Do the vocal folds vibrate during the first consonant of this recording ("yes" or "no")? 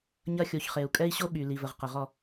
yes